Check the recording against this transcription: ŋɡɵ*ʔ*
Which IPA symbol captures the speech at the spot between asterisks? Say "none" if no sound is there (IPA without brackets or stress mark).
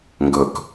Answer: k